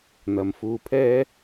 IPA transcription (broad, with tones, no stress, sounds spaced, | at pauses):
n̪ ɐ˨ m f uː˧ pʰ ɛː˥